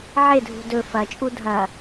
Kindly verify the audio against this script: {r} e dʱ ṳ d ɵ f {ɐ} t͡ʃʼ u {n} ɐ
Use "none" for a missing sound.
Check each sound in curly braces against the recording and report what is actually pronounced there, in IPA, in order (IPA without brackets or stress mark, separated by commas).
ʕ, ɐ, dʱ